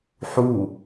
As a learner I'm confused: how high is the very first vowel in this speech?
high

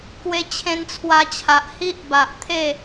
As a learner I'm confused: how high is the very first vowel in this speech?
mid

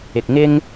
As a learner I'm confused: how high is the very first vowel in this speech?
high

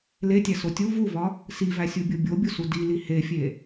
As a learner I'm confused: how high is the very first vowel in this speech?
mid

